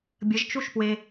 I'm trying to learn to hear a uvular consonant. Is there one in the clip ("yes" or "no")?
no